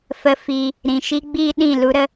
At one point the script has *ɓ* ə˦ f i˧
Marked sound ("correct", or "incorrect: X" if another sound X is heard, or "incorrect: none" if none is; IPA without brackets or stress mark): incorrect: f